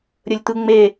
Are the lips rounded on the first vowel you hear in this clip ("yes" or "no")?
no